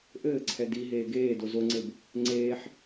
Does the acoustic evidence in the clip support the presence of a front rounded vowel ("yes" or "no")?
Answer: no